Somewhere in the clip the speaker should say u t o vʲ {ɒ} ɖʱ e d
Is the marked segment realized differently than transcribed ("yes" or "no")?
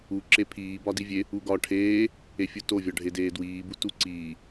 no